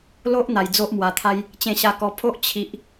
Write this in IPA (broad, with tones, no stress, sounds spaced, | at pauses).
l o˦ ʔ n̪ a˧ j d͡z o˦ ʔ m w a˧ t̪ʰ a˦ j | t͡ɕ ẽ˧ ɕ a˧ k ɔ˧ pʰ o˦ ʔ t͡ɕʰ i˦ ʔ